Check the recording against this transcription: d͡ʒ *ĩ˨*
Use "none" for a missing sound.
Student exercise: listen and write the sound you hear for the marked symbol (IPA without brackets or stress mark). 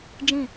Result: ĩ˦˨